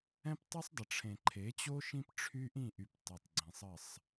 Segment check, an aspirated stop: present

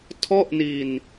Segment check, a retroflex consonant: absent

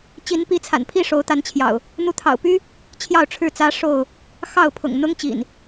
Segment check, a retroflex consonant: present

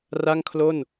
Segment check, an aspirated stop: present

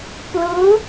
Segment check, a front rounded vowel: absent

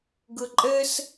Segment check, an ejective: present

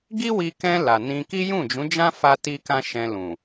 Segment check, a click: absent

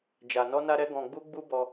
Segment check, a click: absent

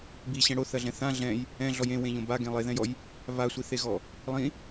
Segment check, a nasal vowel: present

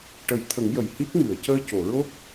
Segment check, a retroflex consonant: present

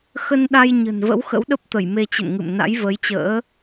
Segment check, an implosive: present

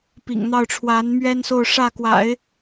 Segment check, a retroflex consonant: present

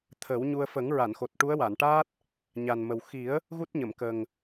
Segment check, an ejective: absent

